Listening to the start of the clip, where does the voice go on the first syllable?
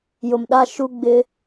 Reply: low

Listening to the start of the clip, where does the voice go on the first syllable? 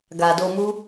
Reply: low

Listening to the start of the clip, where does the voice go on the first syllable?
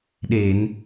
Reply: low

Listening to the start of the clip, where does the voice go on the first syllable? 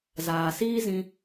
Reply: low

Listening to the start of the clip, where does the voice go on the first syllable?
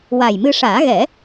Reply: low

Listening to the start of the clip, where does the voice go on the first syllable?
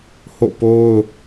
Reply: falling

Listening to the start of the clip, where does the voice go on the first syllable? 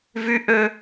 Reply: high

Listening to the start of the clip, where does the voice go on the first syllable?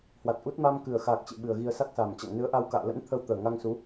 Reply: low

